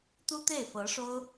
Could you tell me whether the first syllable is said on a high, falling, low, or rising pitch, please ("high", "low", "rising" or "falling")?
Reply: high